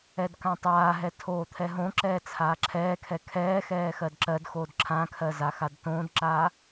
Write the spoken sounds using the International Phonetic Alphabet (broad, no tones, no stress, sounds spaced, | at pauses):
ɛ d k ã tˤ aː ɦ ɛ tʰ oː t̪ʰ ɛ ɦ õ ǁ ɛː t͡sʰ aː ǁʰ ɛː kʰ ɛ kʰ ɛː x ɛː x ɜ d ǁ ɜ d x oː d ǁʰ ã kʰ ɜ z a x a d t õː d ǁ aː